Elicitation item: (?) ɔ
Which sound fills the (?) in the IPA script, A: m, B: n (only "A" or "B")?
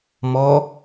A